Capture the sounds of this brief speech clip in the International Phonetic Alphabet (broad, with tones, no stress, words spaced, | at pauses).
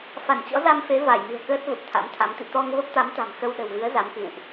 fa˧˩nt͡ɕɔ̰˧˥za˧mfe˨˦ va˧˩jmɨ̤˨˩ə̯kəː˦˥t̚ və˨˩p̚t̪ʰa̰˧˥mt̪ʰa˨˦mt̪ḭ˧˨ t̪ɔ˧ŋ və˦˥p̚t̪a˨˦mt̪a̤˨˩m xə˧wɗə̤˨˩wvɨ˨˦ə̯ za˨˦mkɨ̰˧˨wʔ